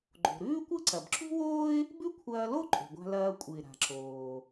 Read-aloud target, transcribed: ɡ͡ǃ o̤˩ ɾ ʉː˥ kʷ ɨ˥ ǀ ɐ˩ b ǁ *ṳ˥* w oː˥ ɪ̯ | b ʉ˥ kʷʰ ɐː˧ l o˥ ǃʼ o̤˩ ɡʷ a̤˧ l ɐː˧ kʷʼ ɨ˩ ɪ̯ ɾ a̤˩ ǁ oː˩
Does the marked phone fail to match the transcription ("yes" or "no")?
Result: no